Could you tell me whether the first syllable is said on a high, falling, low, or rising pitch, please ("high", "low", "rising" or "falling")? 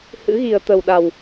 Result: rising